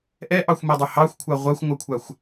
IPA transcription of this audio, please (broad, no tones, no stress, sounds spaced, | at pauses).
ʔ ɛ ʔ ɑ xʷ m ɛ dˤ u h ɑ xʷ kʷʰ a ʁʷ a xʷ ŋʷ a kʷʰ a xʷ